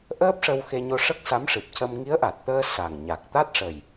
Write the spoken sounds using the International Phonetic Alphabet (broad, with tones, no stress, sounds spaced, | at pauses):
ʔ əː˦˥ p̚ ʂ ə˧ w x e˧ ɲ o˧ ʂ ə˦˥ k̚ s a˧˥ m ʂ ɨ˨˩ p̚ c ə˧ m ŋ i˧˥ ə̯ ʔ a˨˩ t̚ t̪ əː˧ s a˨˩ ŋ ɲ a˨˩ k̚ t̪ a˦˥ t̚ ʂ ə˨˩ j